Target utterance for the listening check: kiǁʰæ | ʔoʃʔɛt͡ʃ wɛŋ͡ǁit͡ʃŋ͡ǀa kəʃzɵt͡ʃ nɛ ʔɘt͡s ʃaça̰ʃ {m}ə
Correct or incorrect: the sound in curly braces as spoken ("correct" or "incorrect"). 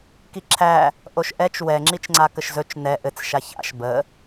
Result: incorrect